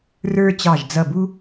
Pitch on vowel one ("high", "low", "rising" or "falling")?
high